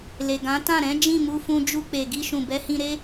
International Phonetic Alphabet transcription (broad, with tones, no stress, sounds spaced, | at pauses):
l e˨ ɡ ã˨˦ t ã˦˨ ɾ ɛ̃˨˦ d͡ʒ ĩ˦˨ m u˧ f ũ˧ d͡ʒ u˧ k͡p e˨ ɡ i˧ ʃ ũ˨ b ɛ˨˦ h ĩ˧ ɾ e˦